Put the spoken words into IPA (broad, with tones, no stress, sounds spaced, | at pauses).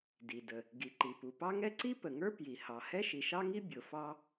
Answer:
d i˩ d ə˩ | ɡ i˩ ǃ i˩ p u˩ p ɑ˥ ŋ ɛ˥ ǀ i˥ p ə˩ ŋ ə˞˥ p j i˩ h ɑ˩ h ɛ˥ ʃ i˩ ʃ ɑ˥ ŋ i˥ bʲ ʊ˩ f ɑ˥